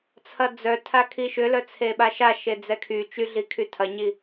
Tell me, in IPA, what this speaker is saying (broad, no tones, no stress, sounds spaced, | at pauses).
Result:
t͡sʰ ɐ d͡z œ tʰ a kʰ i ʃ ʏ l œ t͡sʰ e ɓ a ʃ a ʃ e d͡z ɛ kʰ y t͡ʃ y ɮ i kʰ y tʰ ɐ ɲ i